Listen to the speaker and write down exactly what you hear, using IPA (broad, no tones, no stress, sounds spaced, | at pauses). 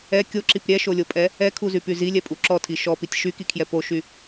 ɛ kʲ o ǁ i p ɾʲ ɛ ʃ o lʲ o pʼ ɛ | ɛ kʰ u z y p y z i lʲ ɛ pʼ u ǁ ɔ tʰ i ʃ ɔ p i tʲ ʃ y k i kʰ j ɛ p o ʃ y